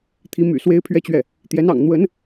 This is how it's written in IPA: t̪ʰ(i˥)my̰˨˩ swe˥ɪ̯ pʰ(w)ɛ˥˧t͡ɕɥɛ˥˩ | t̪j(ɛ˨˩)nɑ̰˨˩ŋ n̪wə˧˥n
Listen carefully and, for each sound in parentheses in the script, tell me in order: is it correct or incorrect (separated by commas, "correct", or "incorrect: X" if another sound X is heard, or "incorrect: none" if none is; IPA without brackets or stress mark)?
incorrect: i˧˥, incorrect: ɥ, incorrect: ɛ˧˥